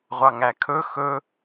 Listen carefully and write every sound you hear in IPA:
ʁʷ ɑ ŋ æ kʰ ɵ x ɵ

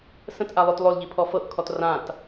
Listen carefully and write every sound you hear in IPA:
s ə̃ t ʔ a lˠ o t lˠ o l ʎ i pʰ ɔ f ɤ ʔ kʰ ɔ t r ã t

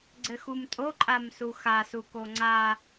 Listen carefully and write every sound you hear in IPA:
ɡ͡ǀ ɘ x u m tʼ o ǃʼ a m s u x a s u k o ŋ͡ǀ a

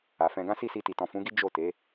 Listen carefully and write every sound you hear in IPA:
a˨ f ɛ̃˧ ɡ ã˦ s i˦˨ s i˧ t i˨ t ɔ̃˨ f ũ˨˦ ɡ i˦ d͡ʒ o˦˨ t e˨˦

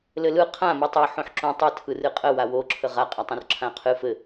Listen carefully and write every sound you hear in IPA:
l ɘ l ɯ qʰ ã m ɯ tˤ o ħ õ ħ ǁ õ tˤ ɘ tʰ ɯ r ɨ qʼ ə w a w o ǁʰ ə ʁ a qʼ a tˤ õ r ǁʰ ã ɐ̯ qʰ ɨ f ɘ

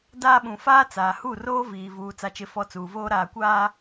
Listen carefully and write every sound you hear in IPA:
d aː˦ ɓ ũ˨ f aː˦ t͡s aː˨ h u˦˨ r oː˦ v iː˨ v uː˨ t͡s a˨ t͡ʃ ɪ˨ f ɔ˨ t͡s uː˨ v oː˦ ɾ aː˨ kʷ aː˦

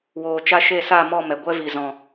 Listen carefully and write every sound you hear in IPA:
w oː˨ t͡ʃ a˧ ʃ e˦˨ s a˦˨ m ɔ˦˨ m ɛ˨ ɡʷ ɛ˧ v i˨ z ɔ̃˨

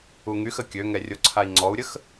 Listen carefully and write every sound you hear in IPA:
u ŋ y x ə kʲ ø ŋ ɛ rʲ o ǀʰ a i̯ ŋ͡ǀ ɔ u̯ ɾʲ ə x

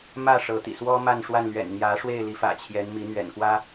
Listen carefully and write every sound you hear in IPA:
m ä˥˨ ʂ ɤ˨˦ t̪ ḭ˨˩ s w ɔ˦ m a˥˨ n ʂ w a˥˨ n l ɥ ɛ̰˨˩ n n̪ j ä˨˦ ʂ w e˥˨ ɪ̯ l i˨˦ f ä̰˨˩ t͡ɕʰ j ɛ˨˦ n m i˨˦ n̪ ɥ ɛ̰˨˩ n k w ä˦

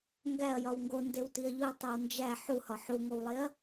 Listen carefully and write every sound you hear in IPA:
ŋ ɡ æ ɐ̯ j ɒ w ŋ ɡ o n d e w t i ɐ̯ ʎ u ɐ̯ tˤ e w n d͡ʒ æ ħ u h ɒ ħ u ŋ o w lˠ e ɐ̯

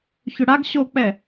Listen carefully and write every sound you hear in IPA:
ç ʏ ɽ a ɡ ɕ o k͡p ɛ

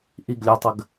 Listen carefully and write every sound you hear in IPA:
ʔ i ɡ lʲ ɵ tˤ ə ɡ

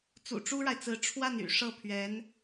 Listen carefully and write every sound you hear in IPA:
t͡s ṵ˨˩ ʈ͡ʂ u˥ ɻ a˨ ɪ̯ t͡s ɹ̩˧˥ ʈ͡ʂʰ w a˥˩ n y̰˨˩ ʂ ɤ˥˩ pʰ ɥ ɛ˧˥ n

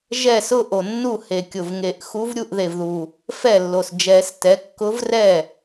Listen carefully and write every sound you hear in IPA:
ʒ ɛ˥˩ s ʊ˥˧ ʔ o˨˩ nː u˥˩ h e˨˩ kʲ ʊ˨˩ v ŋ e˨˩˦ ʔ x u˧˥ v ɾʲ u˥˩ ʔ ð e˨˩ v ð u˨˩ | f ɛ˥˩ lː o˨˩ s d͡ʒ ɛ˨˩˦ s t ɛ˩˥ kː ʊ˧˥ v r ɛ˥˩

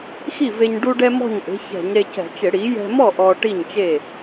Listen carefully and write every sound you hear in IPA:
x i˥˩ v e˧ ɲ ɖ u˧ ɖ ɛ˧ m ɔ̤˥˩ ɲ ʔ e̤˩˥ ç ɛ̤˧˩˧ ɲ ɾ e˧ c ɛ̤˧˩˧ t͡ʃ ɪ˧˩˧ ɽ i˩˥ j ɛ̤˧ m ɔ˥˩ ʔ ɔ˧ ʈ i˥˩ ɲ t͡ʃ e˥˩

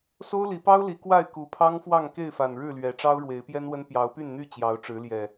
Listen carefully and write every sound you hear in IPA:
s o˦ ʊ̯ l i˨˦ p ɑ˦ ʊ̯ l i˨˦ k w a˥˨ ɪ̯ k u˨˩ pʰ ɑ˦ ŋ f w ɑ˥˨ ŋ k e˥˨ ɪ̯ f a˨˩ n ɻ ɻ̩˥˨ l ɥ ɛ˨˦ ʈ͡ʂ ɑ˦ ʊ̯ ɻ w e˨˦ ɪ̯ p j ɛ˦ n w ə˦ n p j ɑ˨˦ ʊ̯ p y˥˨ n n̪ y˥˨ t͡ɕ j ɑ˨˦ ʊ̯ ʈ͡ʂ ɻ̩˨˦ l j ɛ˨˩

